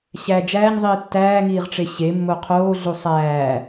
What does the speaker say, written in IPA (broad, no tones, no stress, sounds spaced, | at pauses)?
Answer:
ɕ æ d͡ʒ æː ɲ ðˤ iː tː æː ŋ iː ʁ ʈ͡ʂ e ɕ e mː o qʰ oː ɮ u sˤ æː